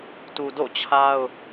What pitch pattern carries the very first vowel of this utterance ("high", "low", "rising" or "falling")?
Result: low